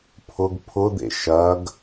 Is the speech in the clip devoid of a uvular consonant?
yes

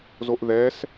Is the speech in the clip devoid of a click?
yes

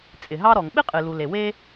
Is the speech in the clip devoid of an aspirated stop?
yes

